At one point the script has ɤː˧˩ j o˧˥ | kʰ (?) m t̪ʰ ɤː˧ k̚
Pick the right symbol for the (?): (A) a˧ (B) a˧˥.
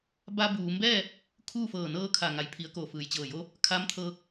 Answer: B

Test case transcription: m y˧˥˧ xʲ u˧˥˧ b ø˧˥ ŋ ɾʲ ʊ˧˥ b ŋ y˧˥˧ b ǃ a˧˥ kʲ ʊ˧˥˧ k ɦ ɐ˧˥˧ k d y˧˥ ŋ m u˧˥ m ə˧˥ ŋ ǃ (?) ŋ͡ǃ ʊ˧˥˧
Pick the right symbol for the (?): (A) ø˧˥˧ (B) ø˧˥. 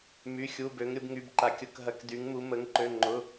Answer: A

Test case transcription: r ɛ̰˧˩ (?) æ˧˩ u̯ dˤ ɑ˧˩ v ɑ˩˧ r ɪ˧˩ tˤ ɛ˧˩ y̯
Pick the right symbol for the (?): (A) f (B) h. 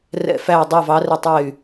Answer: A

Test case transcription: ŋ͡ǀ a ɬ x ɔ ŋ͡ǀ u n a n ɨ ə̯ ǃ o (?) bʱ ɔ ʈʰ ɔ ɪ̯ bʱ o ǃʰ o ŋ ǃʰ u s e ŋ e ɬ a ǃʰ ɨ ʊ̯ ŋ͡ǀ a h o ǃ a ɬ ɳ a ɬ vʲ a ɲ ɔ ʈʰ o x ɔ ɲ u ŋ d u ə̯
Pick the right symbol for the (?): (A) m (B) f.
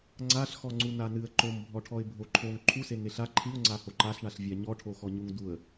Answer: A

